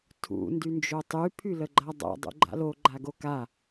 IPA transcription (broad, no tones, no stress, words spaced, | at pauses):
tʰṵ ndynd͡ʒotˤy pʰyləɡ͡ǃadˤa̰ dˤṵɡ͡ǃa̰lo ɡ͡ǃaɡoka